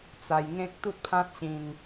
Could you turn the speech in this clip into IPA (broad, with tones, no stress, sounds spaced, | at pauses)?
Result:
t͡s a˧ j ŋ ẽ˦ k̚ t̪ u˦ t̚ pʰ ã˦ t̚ ɕ ĩ˧ ŋ